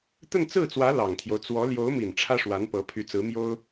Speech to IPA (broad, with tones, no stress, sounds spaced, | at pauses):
t̪ ə˥˧ n t͡s ɹ̩˥˩ t͡s w ä˧˥ l ɑ˨˩ ŋ t̪ʰ j o˦ ʊ̯ t͡s w ɔ˧˥ l j o˧˥ ʊ̯ m i˨˩ n ʈ͡ʂʰ ä˥ ʂ w a˧˥ n p ɤ˧˥ pʰ y˧˥ t͡s ɹ̩˧˥ m j o˥ ʊ̯